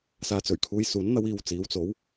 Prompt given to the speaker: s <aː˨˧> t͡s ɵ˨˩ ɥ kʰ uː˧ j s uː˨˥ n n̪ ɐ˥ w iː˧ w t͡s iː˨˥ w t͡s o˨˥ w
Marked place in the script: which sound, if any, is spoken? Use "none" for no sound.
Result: aː˨˧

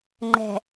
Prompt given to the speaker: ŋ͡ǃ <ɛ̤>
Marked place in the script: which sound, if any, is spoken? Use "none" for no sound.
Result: ɛ̤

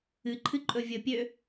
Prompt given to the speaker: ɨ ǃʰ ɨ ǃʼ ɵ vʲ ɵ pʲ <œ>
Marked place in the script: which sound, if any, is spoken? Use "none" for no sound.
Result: ø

